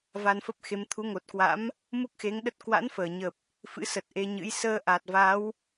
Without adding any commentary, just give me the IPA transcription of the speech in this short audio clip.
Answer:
va˧nfə˦˥p̚xe˨˦m t̪ʰu˨˦ŋo˨˩t̚kwa̰˧˥m | mu˦˥k̚xe˨˦ŋɗə˦˥t̚ kwa̰˧˥nfəː˧˩ɲə˨˩p̚ | fɨ̰˧˥sə˨˩t̚ ʔe˧ɲɨ̰˧˥j səː˧ʔa˨˩t̚va˨˦w

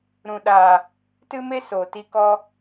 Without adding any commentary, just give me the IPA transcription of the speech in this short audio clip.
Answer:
ɾũ˨ɗaː˨ | tɨ˦me˦so˨ ti˧kɔ˧

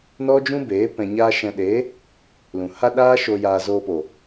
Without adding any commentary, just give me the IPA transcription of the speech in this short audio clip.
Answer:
nɔ˦d͡ʒũ˦beː˨˦ pɛ̃˨ɲaː˧ʃɛ̃˨ɗeː˨˦ | lũ˨ha˦ɗaː˦ʃo˧ jaː˧zoː˧po˨

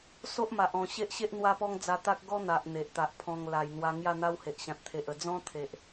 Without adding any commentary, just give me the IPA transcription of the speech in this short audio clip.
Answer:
so˦ʔma˨ʔɔ̃˨˩ ɕe˦ʔɕe˦ʔ n̪wa˦pɔ˦ŋ d͡za˧t̪a˦k̚ ɡɔ˦n̪a˨ʔ n̪e˨ʔt̪a˨ʔpʰɔ̃˧ŋ la˨˩jn̪wa˧ ŋja˥˧n̪a˦whe˨ʔɕã˨t̚ t̪ʰe˨ʔə˨˩ d͡zɔ̃˦ t̪ʰe˨ʔ

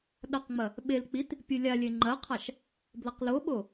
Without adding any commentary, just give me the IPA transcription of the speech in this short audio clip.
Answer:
ɗɐqŋ͡mɐ | ɓel k͡pit | pʲɨlʲalʲe ŋ͡ǃɐqʰaʃ | blɐqloɓo

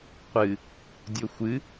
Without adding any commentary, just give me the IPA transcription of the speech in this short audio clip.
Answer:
qʷɨ | dʲoxʷɨ

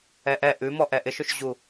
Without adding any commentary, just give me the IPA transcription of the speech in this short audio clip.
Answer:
ɛʔɛ ʔʉmɔ ʔɛʔɪʃɵʃʑu

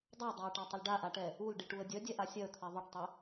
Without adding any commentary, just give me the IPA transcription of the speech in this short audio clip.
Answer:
dˤadˤaə̯ʈatˤəl ɖaʔaʈɛ | ulɖiʈuə̯ dʲœdʲɛʔa sʲœə̯t̪ʰɛ ðˤœʈtˤœ

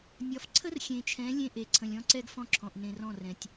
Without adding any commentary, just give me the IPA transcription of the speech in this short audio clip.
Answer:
nʲɒ˨fǀʰə˦rxʲẽ˨t͡ʃʰɛ̃˨˦ lʲẽ˦ʔe˨ ǀʰə̃˨lʲɔ̃˦ǀɛ˦ɡ fɔ̃˦ǁʰɔ̃˨ʔ nẽ˨rɔ̃˦˨ rɛ̃˨tʲ

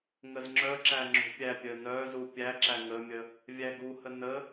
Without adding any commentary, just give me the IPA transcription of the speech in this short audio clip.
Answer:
ŋəzŋ͡ǁœǁæ ŋ͡ǁṳpʲæpʲœ nœzu pʲæǁæ ŋəmʲə | vʲæɡuhə nə

